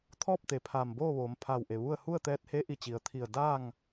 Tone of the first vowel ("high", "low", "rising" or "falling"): falling